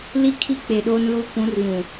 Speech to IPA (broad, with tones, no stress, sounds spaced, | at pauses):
l i˦ kʰ i˦ k͡p e˨ ɗ oː˦ n l uː˦ kʷ ũ˨˦ r β ũ˨